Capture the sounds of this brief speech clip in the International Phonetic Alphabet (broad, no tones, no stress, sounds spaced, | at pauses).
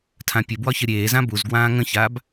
tʰ ã pʲ ə b w ɒ ç ə ɾʲ eː z ã b u z ɡ w ãː ŋ ə̃ ç aː b